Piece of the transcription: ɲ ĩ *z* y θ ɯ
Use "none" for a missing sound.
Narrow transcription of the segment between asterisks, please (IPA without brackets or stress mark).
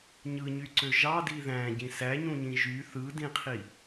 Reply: ʒ